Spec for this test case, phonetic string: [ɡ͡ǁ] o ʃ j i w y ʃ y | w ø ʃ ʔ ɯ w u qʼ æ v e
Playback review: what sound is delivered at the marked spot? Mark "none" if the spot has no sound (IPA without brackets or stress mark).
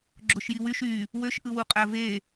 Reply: ɡ͡ǁ